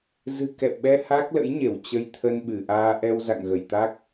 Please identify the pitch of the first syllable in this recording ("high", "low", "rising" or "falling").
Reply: low